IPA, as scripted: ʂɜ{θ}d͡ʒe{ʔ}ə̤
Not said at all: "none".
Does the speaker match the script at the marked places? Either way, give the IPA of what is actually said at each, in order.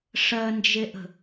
n, ʔ

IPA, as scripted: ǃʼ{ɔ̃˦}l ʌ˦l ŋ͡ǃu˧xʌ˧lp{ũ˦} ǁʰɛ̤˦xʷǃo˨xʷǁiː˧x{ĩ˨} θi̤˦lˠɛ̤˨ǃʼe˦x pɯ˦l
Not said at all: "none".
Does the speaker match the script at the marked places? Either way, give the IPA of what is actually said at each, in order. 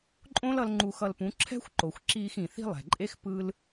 õ˦, ũ˨˦, ĩ˨

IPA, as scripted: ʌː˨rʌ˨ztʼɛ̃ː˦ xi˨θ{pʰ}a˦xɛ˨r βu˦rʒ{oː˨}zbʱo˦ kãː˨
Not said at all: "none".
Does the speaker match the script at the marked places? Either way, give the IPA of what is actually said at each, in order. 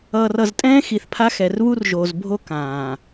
pʰ, oː˨

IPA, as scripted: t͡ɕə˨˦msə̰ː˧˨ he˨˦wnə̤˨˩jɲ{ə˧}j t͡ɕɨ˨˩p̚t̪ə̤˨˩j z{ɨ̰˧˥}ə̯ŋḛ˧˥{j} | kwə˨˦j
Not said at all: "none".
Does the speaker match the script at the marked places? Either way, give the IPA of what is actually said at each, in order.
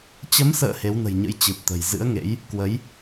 ə̰˧˥, ɨ̰˧˥, j

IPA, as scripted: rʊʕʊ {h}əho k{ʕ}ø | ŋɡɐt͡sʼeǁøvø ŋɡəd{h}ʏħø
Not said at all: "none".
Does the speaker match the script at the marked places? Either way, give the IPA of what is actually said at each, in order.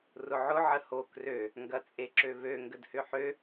ʕ, r, h

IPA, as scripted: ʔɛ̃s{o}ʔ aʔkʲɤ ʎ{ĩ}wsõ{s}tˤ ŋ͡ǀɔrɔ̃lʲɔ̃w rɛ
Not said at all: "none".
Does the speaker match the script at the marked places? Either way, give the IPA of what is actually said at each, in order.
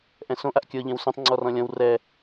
õ, ẽ, none

